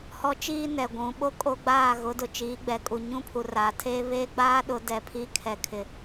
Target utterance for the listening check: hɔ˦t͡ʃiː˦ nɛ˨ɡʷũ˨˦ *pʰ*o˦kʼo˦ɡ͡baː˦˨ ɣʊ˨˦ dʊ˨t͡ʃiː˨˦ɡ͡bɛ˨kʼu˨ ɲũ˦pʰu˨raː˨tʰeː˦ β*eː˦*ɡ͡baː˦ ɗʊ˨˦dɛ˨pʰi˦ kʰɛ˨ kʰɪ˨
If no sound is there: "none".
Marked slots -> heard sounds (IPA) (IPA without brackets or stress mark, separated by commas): ɓ, eː˦